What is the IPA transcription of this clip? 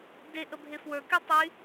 d e ʔ ə bʱ e f w ə˞ k y tˤ y

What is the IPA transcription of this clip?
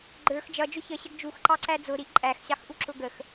ɡ͡ǃ ə˞ x d͡ʒ ʌ d͡ʒ ʊ ç ə ɕ ə ɡ d͡ʒ u x ǃ ɑ ǀ æ d͡z ʊ ɾ i ʔ ǃʼ æ x ɕ ɑ x ʔ u ǁ ʊ ɡ ə x

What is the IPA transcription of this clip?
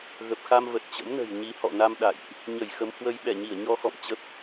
ɣ ə˨˩ p̚ x a˧ m v ə˨˩ t̚ t͡ɕ ə̰˧˥ m n ə̤˨˩ j ɲ i˨˦ h ɔ̰˧˨ n a˧ m ɗ a̰˧˨ j ʔ | ɲ ə˧˩ j x ə˨˦ m h w ə˧ j ɓ ɛ˧˩ ɲ i˧˩ ə̯ ɲ ɔ˧ x ɔ̰˧˨ m t͡ɕ ə˦˥ p̚

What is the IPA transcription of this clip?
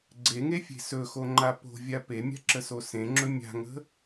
ɡ͡ǀ e ŋ e fʲ e̤ s ɵ x o ŋ͡ǃ a p o̤ vʲ a p e mʲ a̤ ǁ ə s o s ẽ ŋ͡ǁ ɵ mʲ a̤ ŋ ə̤

